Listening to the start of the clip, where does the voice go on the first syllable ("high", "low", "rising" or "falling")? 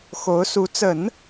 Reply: rising